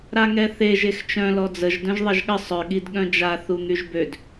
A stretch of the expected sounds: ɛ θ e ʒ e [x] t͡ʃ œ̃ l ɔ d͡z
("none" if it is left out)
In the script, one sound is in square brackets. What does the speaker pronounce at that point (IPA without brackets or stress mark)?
x